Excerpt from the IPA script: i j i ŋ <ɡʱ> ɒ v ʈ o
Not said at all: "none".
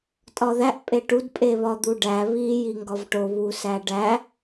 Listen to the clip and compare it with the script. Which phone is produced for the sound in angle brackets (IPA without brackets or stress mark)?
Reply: ɡ